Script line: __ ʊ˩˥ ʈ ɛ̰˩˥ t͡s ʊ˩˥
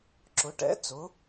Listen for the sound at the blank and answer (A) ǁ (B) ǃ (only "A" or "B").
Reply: A